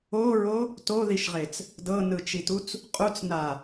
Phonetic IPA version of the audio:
o ɹ o | t o ð i ʃ ʁ e t͡s | d ɤ n ɯ t͡ʃ i t u t͡s | qʼ u t͡s n a

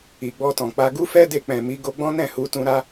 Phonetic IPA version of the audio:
i˨ ɡ͡b ɔ˧ t ɔ̃˨ k͡p a˧ ɡ u˦ f ɛ˦ d e˧ k͡p ɛ̃˨ m i˨˦ ɡ o˧ ɡ͡b ɔ̃˦ n ɛ̃˦˨ h u˨˦ t ũ˧ ɾ a˦

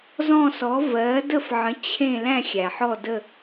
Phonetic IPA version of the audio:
z ɔ̃˥˧ s ɔ˨˥ v ɜ˨˥ d ə˥˧ f ʕ ə̃˨˥ t͡ɕʰ ẽ˥˧ l æ̃˥˧ xʲ æ˩ ħ ɔ˥˧ d ə˥˧

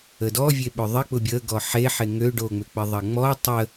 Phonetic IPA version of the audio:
ə d ɔ vʲ e ɓ ʏ ðˤ ɪ k͡p ʊ bʲ ə ɡ ɔ ħ e ħ e ŋ ø ɖ o ŋ͡m ʏ k͡p ɪ ðˤ ɐ ŋ͡m ɔ tˤ ə

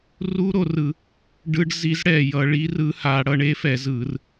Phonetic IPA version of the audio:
r u˦˥ ɾ o˩˧ r ɯ˧˩˧ | ɖ ɯ˧ ɖ z i˨˥ z ɽ ɛ˨˩ j ʌ˧˩˧ ɭ i˨˥ r ɯ˨˥ h a˩˧ ɽ ʌ˧ ɳ e˦˥ f ɛ˧˩˧ z ɯ˧˩˧ r

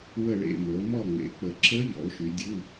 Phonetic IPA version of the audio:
w ə˦˨ ɭ ḛ˦˨ m ə˩˧ o̯ m ɔ˦˨ ŋ͡m ḛ˩˧ k͡p ə˨˩ ǁ ə˦˥ ʎ ɔ̰˩˧ o̯ ʃ y˩˧ dʲ u˧˥˧

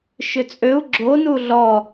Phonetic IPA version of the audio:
ʃ ʏ t͡sʼ ø u̯ ɡ͡ǁ o n u ɮ ɔ

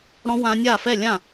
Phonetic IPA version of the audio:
ɽ ɔ̃˦˥ w ã˦˥ nʲ a˥˩ f ɛ˥˩ lʲ ã˥˩

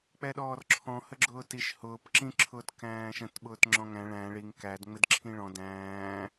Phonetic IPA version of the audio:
k͡p ɛ ɗ ɔː r ǁʰ ɔ̃ h ə ɡ͡ǁ ʊː t i ʃ h ʊː p ǁ ĩ ǁʰ ʊː t k æ̃ː ʃ ə̃ t ɓ ʊː t ŋ͡ǁ ɔ̃ ŋ æ̃ ɭ æ̃ ɭ i ŋ k æ d ŋ͡m ɪ d ǁʰ ĩ ɭ ɔ̃ d æ̃ː

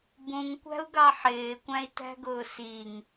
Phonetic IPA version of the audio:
b ũ ŋ kʷ æ̤ u̯ ɡ ɑ ħ ɪː kʷ æ̃ i̯ t æ̤ ɡ ʊː s i ŋ

